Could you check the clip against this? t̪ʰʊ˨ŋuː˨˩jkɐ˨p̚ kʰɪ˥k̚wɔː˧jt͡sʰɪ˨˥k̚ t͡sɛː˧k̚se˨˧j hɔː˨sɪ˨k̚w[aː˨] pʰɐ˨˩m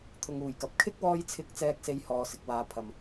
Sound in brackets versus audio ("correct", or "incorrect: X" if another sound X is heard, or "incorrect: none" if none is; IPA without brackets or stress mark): correct